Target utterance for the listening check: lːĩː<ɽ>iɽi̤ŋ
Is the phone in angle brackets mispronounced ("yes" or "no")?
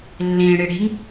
no